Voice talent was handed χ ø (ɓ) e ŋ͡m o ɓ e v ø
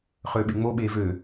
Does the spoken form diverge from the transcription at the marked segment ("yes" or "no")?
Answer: no